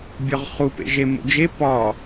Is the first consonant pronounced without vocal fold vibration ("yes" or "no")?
no